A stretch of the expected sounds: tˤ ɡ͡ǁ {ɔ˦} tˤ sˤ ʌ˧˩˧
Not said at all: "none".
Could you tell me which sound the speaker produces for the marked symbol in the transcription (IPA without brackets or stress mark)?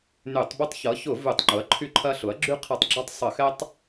ɔ˦